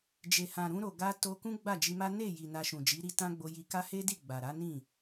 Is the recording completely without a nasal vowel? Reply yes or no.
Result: no